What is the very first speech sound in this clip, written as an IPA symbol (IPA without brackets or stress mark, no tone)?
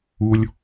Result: u